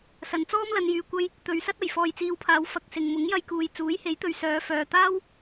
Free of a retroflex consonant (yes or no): yes